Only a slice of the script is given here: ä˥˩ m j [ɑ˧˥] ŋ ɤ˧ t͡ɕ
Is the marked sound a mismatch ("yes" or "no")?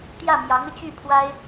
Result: no